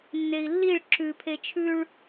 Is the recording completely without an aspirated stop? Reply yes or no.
no